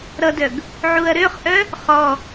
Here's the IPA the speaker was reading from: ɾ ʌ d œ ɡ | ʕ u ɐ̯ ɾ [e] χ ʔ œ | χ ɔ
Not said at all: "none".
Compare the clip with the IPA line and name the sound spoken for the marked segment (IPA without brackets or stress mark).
ø